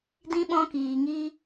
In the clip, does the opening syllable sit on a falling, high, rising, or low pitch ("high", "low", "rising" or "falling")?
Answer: high